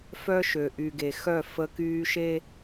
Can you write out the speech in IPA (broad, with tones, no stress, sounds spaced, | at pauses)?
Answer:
f œ˦ ʃ ø˨ ʔ y˨ ɡ e˨ x œ˦˨ f ə˦ k yː˦ ʃ e˦